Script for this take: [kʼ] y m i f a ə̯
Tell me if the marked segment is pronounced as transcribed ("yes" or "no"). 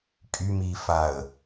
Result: yes